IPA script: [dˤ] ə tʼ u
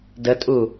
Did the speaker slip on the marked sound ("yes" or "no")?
yes